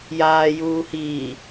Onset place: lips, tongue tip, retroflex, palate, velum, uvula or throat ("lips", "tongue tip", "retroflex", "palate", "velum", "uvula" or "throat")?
palate